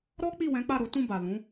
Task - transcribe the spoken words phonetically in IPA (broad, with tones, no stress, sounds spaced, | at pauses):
ɾ ɔ˦ k͡p i˦˨ w ɛ̃˨˦ k͡p a˦˨ ɾ o˨˦ t ũ˦˨ b a˨ l ũ˨˦